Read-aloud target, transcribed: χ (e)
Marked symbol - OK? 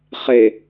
yes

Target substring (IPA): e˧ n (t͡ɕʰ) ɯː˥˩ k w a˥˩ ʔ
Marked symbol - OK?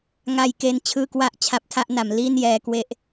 yes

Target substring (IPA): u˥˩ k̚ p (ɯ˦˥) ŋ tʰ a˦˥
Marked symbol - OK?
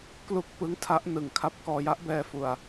yes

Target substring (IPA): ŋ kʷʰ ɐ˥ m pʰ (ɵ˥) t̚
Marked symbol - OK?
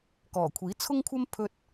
yes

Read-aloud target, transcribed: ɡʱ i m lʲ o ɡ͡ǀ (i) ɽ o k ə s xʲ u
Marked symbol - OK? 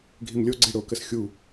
yes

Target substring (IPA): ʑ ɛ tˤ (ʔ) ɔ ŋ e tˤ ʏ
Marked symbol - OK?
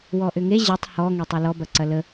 no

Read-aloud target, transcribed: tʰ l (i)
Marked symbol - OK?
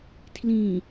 no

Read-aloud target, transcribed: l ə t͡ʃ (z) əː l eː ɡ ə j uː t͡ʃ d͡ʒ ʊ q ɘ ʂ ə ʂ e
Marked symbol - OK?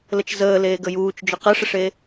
yes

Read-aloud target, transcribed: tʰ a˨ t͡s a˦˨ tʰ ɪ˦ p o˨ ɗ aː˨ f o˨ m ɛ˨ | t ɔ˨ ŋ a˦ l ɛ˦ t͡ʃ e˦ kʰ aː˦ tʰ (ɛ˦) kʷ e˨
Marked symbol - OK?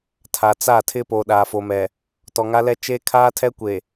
yes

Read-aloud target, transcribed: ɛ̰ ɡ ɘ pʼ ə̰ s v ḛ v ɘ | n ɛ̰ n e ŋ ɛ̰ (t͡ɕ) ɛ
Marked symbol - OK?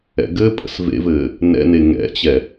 yes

